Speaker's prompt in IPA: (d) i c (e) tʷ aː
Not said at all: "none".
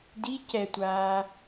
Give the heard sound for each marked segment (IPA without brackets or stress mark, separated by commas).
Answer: d, ɛ